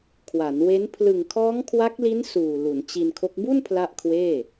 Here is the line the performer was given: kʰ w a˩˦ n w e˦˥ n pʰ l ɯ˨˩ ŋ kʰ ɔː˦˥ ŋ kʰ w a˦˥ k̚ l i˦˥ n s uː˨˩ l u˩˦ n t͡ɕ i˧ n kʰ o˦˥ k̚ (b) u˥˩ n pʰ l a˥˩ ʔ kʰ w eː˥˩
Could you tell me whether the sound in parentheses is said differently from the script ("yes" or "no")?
no